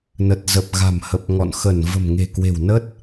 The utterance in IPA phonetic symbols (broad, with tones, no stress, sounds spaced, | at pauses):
n ə˨˩ t̚ z ə˨˩ p̚ ɣ a̤˨˩ m h ə˨˩ p̚ ŋ ɔ̰˧˨ n x ə˧˩ n v ə̤˨˩ m ŋ e̤˨˩ k w e̤˨˩ w n ə˦˥ t̚